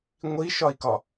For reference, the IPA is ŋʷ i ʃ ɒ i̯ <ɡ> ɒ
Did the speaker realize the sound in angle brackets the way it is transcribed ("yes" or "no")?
no